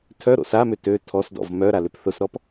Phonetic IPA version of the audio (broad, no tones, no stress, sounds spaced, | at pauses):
tʰ œ ɾ o̰ s a m ʏ t ø tʰ ɔ s d ɔ̰ v m œ ɾ a l ʏ p θ ʊ s ɾ ɔ p